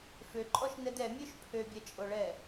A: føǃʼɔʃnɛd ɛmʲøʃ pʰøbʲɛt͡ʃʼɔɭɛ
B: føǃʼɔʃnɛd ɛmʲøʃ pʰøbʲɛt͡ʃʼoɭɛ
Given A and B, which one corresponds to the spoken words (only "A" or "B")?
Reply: B